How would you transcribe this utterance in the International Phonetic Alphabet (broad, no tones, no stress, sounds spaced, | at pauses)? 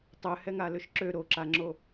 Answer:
tˤ ø h ɛ ŋ a l ø ʃ ǁ ø ɾ o ǁ a ŋ͡ǁ o